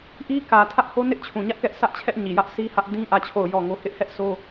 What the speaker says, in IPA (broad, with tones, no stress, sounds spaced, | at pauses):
ʔ i˦ k ä˨ tʰ ä˦ ʔ h o˦ n ɪ˦ ʔ t͡ɕʰ ũ˨ ɲ ä˦ ʔ k ɛ˦ ʔ s ä˦ ʔ t͡ɕʰ ɛ˦ ʔ ɲ i˨ j ä˦ ʔ sʰ i˦ h ä˦ ʔ d ĩ˦ ʔ ä˦˨ t͡ɕʰ o˦˨ ʊ̯ j ɔ˦˨ ŋ o˦ h ɪ˦ ʔ h ɛ˦ ʔ sʰ o˦